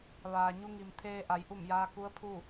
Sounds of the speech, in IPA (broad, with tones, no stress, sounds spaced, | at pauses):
ʋ aː˩ ɲ u˧ ŋ i˩ m t̪ʰ eː˧ ʔ a˩˧ j ʔ u˧˩ m j aː˧ k u˧˥ ə̯ pʰ u˥˨